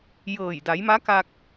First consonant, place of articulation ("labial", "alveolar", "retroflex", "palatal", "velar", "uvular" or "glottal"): palatal